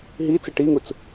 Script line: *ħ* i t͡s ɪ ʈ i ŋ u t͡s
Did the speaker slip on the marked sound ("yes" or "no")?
yes